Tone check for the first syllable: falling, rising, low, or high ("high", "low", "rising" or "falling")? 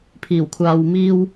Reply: low